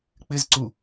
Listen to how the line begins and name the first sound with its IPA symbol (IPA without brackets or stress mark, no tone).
k͡p